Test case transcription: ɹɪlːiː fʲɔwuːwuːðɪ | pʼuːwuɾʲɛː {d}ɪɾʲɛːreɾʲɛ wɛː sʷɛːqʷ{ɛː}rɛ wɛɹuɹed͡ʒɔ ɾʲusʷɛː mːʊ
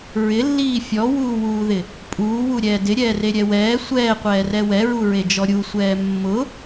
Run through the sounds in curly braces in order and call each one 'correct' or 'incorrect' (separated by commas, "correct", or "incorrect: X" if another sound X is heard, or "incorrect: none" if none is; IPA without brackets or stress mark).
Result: correct, correct